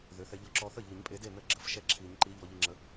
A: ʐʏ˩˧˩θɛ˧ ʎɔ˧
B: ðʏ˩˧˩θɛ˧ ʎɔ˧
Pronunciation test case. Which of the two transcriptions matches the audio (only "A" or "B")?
B